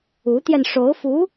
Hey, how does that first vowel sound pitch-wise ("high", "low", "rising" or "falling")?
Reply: rising